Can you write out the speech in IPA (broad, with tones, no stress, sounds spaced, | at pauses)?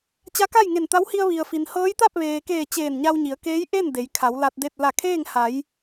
t͡ɕ a˧˥ k a˥˨ j ŋ e˧˩ n t̪ a˧˥ w h i˧ ə̯ ʋ i˩ ə̯ f i˩ n h ɤː˧˥ j t̪ a˥˨ p̚ ʋ eː˩ k eː˧˩ t͡ɕ eː˧˩ n ɲ a˧ w ɲ i˩˧ ə̯ k eː˧˥ j ʔ e˥˨ n d e˩˧ j kʰ a˩˧ w l a˧ t̚ d e˥˨ t̚ l a˧˩ kʰ eː˥˨ ŋ h a˩˧ j